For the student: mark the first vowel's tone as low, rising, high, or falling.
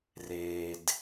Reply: low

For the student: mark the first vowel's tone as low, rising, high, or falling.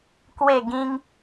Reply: falling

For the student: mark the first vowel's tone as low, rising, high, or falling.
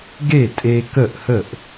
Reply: falling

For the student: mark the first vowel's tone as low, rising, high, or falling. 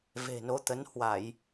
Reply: low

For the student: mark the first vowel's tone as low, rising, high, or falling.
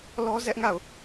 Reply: high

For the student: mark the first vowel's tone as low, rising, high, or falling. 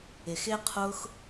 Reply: low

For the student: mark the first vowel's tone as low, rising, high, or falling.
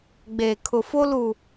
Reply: low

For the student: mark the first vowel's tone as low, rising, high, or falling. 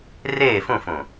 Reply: falling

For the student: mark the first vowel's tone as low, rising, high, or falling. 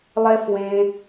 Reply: high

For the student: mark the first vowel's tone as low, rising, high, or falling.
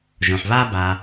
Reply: low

